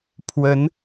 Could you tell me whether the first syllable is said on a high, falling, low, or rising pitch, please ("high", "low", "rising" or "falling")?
rising